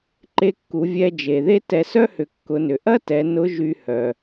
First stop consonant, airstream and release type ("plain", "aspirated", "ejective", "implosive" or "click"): click